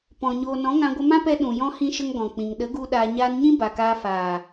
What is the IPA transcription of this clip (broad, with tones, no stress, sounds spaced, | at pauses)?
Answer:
p ɔ̃˨ ɲ oː˨ n ɔ̃˨˦ ŋ ã˧ ɡʷ ə˧ m ã˦ p ɛ˧ ɗ ũ˨ j ɔ̃˦ h ĩ˦ ʃ ə˦ ŋ ɡ ɔ̃˨ k͡p ĩ˨ ŋ ɗ ə˨˦ ɡ u˧ ɗ aː˧ ɲ aː˧ n ɲ ĩ˦ b a˨ k aː˧ f aː˨